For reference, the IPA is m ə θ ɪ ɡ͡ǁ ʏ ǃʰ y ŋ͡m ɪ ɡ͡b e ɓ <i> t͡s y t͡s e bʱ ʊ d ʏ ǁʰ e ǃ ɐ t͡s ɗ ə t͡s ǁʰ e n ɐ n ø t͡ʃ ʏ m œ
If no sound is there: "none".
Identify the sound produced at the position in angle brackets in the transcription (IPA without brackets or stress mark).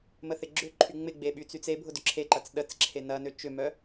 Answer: y